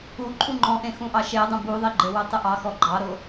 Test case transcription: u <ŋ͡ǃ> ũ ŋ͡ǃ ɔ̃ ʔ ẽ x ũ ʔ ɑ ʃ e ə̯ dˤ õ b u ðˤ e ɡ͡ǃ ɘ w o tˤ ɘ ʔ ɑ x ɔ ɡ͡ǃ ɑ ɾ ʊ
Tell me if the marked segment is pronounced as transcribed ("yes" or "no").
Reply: no